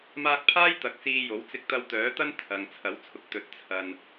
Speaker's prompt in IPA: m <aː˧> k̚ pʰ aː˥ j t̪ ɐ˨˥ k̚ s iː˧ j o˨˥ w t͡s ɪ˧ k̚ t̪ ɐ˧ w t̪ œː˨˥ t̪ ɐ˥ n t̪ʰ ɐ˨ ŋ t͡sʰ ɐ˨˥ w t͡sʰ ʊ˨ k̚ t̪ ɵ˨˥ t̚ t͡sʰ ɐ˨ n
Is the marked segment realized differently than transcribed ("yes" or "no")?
no